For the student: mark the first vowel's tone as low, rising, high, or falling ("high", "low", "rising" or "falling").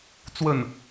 falling